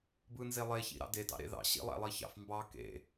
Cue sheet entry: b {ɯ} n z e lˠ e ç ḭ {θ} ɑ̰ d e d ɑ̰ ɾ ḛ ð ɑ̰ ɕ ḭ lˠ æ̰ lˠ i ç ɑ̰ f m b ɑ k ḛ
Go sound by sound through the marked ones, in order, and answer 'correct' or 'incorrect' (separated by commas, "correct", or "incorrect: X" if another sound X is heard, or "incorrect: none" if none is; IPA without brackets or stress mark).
correct, incorrect: ɾ